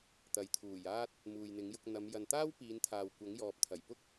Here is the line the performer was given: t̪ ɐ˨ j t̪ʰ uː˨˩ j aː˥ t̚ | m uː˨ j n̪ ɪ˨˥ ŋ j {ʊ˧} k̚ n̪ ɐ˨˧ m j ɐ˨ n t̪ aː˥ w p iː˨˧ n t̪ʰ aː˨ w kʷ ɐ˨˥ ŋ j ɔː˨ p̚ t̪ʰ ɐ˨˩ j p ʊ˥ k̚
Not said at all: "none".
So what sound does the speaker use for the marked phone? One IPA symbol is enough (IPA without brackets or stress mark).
ʊ˧